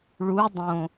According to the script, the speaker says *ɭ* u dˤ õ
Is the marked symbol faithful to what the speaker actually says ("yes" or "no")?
yes